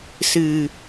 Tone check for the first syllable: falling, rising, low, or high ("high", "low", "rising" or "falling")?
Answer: low